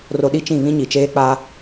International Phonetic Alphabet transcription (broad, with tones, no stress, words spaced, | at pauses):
ro˨ ɗi˦t͡ʃĩ˦˨ βĩ˦ɲi˨t͡ʃeː˦ k͡pa˦